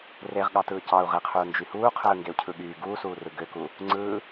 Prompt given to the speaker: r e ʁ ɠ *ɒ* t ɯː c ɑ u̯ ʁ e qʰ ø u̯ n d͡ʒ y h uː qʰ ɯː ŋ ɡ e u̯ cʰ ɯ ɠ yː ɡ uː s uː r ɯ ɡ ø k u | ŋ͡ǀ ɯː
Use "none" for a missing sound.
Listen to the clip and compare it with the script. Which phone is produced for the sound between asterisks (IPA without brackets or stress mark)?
ɑ